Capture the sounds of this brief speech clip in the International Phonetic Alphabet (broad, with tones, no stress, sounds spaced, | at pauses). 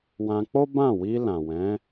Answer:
w ã˧ k͡p o˦ b ã˦˨ w i˧ l ã˨ w ɛ̃˨˦